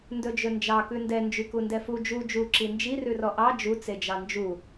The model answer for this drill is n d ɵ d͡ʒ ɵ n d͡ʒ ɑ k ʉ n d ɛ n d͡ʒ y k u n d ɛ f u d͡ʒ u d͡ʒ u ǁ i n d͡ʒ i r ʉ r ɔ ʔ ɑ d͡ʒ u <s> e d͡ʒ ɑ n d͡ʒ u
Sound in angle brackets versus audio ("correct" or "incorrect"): incorrect